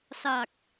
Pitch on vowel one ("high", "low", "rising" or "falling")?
low